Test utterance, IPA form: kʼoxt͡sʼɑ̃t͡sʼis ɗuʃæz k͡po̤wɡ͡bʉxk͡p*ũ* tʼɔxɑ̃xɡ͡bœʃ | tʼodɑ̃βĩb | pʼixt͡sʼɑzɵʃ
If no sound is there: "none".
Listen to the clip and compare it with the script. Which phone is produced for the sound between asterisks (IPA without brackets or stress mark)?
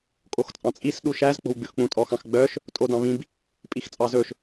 ũ